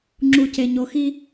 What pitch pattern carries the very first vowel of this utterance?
low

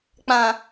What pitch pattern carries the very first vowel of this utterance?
low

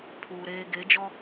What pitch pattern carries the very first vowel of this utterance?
low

